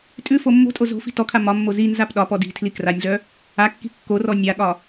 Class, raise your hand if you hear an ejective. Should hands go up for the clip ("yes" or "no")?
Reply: yes